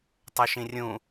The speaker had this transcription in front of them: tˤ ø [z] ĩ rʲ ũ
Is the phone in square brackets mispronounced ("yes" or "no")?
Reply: yes